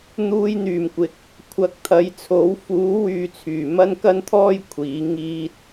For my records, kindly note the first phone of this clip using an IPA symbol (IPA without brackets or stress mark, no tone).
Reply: n̪